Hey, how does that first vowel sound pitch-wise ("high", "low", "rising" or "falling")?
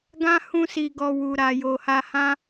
high